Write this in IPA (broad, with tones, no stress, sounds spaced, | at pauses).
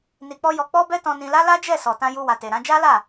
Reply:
n i˧ k͡p ɔ˦ j ɔ˧ k͡p ɔ˧ b ɛ˧ t ɔ̃˧ n ĩ˧ l a˦ l a˦ d͡ʒ ɛ˦˨ s ɔ˨ t ã˧ j u˧ w a˨ t e˨ ɾ ã˨˦ d͡ʒ a˦ l a˦˨